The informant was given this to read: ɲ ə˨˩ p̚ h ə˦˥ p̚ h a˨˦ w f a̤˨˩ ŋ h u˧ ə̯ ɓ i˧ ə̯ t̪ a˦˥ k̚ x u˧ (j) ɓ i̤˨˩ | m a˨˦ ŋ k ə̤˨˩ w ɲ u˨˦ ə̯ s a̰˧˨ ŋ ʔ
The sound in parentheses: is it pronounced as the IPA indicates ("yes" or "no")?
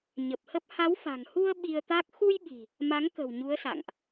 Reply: yes